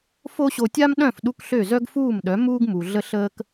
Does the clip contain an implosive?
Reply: yes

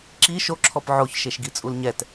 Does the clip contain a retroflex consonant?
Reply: no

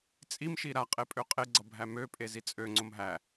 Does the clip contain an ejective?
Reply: yes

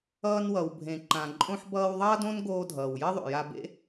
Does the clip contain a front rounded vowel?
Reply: no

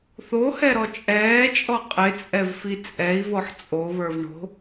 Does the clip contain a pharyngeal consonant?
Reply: yes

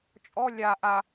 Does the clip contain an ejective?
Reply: yes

